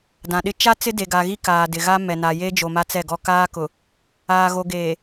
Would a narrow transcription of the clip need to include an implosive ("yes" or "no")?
yes